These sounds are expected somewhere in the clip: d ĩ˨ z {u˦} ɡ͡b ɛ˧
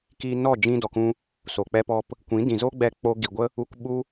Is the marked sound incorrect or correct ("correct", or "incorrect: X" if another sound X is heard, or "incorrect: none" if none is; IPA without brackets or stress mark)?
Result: incorrect: o˦